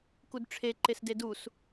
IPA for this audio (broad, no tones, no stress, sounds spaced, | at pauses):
k u d ʈ͡ʂʰ e ǃ e s d e d u s